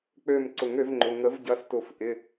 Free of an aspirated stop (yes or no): yes